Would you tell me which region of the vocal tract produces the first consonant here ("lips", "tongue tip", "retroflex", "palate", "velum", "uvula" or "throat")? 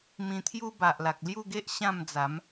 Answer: lips